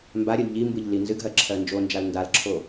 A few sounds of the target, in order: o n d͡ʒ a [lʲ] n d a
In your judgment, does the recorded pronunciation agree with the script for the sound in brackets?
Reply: no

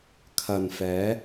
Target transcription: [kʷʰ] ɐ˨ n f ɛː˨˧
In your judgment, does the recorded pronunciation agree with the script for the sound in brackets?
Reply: no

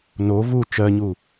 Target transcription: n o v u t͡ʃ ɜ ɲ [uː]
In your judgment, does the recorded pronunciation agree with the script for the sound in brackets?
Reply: yes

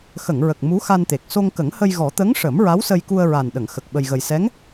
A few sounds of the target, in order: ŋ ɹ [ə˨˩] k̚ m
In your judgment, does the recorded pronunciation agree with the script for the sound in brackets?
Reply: yes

